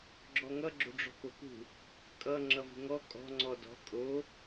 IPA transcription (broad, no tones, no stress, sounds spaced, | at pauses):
ɡ͡ǁ ɔ ŋ ʌ ɡ͡ǁ o̤ ɖ͡ʐ ɔ̤ k o k ṳ | kʼ ʌ ŋ͡ǁ ʌ v ṳ ŋ ɔ kʼ ɔ̤ ŋ͡ǀ ɔ d ɔ̤ kʼ o